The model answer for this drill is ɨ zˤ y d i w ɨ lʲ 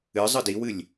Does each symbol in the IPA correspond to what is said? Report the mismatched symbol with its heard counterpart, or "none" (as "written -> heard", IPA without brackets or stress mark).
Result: y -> ɨ